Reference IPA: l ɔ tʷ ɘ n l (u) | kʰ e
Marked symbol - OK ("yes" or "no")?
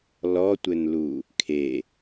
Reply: yes